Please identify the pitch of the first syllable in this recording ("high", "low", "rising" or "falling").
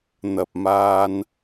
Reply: low